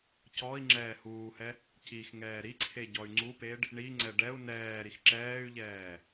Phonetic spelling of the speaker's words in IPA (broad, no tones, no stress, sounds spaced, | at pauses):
c ɔ i̯ ŋ͡ǁ ɛː h uː h ɛ | c i x ŋ ɛː ɾ i ǀʰ e ɟ ɔ y̯ ŋ͡ǀ u p e ɖ | ɳ i ŋ͡ǀ ɛ ɖ ɛ u̯ n ɛː ɾ i x ǁ ɛː y̯ ʎ ɛː